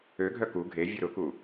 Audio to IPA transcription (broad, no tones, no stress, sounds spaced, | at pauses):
ø ɡʱ œ k u ɡʱ e vʲ ʊ ɾ ʊ k u